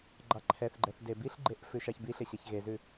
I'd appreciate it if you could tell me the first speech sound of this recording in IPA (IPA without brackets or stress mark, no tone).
ɡ͡ǃ